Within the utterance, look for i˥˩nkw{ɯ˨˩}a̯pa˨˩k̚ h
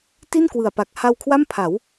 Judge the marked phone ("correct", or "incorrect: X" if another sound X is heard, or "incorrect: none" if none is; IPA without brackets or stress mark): correct